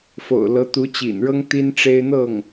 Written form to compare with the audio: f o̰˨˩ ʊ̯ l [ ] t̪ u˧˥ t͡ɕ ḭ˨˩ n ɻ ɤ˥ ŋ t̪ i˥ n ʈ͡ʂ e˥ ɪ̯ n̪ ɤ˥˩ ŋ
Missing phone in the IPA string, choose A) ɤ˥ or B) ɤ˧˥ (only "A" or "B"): B